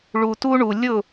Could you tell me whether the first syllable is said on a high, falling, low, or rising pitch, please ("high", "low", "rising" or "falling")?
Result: low